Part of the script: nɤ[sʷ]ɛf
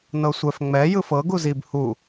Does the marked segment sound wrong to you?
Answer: no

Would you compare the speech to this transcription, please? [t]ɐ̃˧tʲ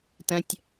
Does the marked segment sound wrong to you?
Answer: no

